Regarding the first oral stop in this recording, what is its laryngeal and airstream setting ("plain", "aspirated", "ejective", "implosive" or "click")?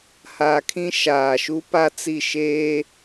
aspirated